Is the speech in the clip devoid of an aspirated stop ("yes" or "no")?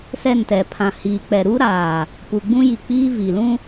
no